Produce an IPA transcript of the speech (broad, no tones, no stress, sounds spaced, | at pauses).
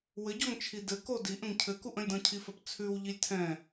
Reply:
w ɘ ɟ ɔ ŋ t͡ʃʰ i d ɘ k o d i ʔ ə̃ ŋ cʰ ɘ k u ʔ ə̃ lʲ d ɔ̃ cʰ i f ɐ p t͡sʰ ʉ w ʎ i lʲ tʰ ɛ̃